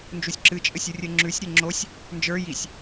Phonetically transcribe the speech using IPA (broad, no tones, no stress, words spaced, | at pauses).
nd͡ʒusʲǁɨt͡ʃʼɘsʲ urʲɘŋ͡ǁʉsʲɾʲɘ ŋ͡ǁosʲ | nd͡ʒə˞ jisʲ